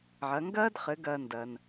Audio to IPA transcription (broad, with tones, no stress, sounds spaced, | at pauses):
ʕ ɐ˩˧ ŋ ɡ ɐː˥ d χ ɘ˩˧ ɡ ɐː˧ n d ɐː˩ n